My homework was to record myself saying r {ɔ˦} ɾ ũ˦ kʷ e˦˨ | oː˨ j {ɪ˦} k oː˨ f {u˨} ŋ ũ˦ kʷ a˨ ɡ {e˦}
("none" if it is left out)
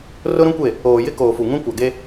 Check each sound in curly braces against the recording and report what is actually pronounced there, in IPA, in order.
ʊ˦, ɪ˦, u˨, e˦

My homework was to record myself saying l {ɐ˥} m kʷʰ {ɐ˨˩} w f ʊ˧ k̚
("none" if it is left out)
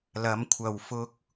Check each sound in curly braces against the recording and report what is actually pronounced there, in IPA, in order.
ɐ˨˥, ɐ˨˩

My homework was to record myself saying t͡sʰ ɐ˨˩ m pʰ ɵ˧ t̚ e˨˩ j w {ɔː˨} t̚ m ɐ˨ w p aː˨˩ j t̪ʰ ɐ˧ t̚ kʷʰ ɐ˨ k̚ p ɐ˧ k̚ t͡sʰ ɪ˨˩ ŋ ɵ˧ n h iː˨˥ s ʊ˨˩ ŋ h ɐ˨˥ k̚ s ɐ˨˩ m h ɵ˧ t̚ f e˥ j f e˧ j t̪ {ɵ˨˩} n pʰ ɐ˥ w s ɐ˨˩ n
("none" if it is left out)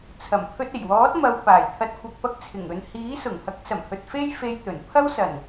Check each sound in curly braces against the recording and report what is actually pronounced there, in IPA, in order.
ɔː˨˥, ɵ˨˩

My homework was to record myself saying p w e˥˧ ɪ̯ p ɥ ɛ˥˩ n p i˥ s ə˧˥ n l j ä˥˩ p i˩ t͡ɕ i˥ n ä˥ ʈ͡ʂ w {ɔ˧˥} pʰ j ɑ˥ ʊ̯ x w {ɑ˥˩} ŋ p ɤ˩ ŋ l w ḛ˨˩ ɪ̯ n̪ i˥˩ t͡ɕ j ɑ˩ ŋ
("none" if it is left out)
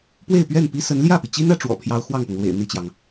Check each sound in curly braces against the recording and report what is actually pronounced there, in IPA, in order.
ɔ̰˨˩, ɑ˥˩

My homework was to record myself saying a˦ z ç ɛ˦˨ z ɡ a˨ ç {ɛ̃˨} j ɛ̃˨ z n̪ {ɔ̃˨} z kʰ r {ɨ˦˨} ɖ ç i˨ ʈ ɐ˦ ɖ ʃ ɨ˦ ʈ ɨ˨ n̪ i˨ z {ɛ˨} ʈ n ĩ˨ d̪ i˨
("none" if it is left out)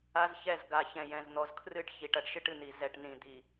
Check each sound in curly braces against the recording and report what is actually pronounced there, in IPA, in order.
ɛ̃˨, ɔ˨, ɨ˦˨, ɛ˨

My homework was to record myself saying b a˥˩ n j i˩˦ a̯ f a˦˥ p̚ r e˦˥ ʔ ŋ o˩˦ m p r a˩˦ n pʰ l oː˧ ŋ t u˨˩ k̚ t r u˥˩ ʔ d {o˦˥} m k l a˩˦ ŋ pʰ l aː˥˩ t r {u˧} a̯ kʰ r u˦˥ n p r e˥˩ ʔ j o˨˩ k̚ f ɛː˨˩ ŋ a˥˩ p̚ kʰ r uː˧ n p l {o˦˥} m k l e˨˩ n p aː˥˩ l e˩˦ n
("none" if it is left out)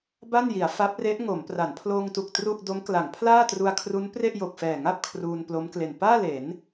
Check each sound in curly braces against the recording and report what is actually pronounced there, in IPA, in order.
o˦˥, u˧, o˦˥

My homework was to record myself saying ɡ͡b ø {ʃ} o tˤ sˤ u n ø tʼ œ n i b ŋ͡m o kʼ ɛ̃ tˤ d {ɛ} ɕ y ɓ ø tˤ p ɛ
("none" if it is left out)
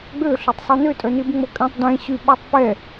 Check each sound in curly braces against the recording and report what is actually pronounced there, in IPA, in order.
ɬ, ɛ̃

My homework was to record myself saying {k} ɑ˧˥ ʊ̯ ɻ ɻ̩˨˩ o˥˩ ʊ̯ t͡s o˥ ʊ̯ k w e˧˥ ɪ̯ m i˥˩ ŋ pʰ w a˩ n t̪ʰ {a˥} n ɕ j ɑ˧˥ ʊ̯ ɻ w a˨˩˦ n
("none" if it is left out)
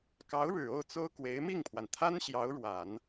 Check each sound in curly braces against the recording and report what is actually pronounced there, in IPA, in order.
k, a˥

